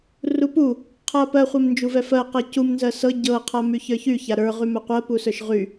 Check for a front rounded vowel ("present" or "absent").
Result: present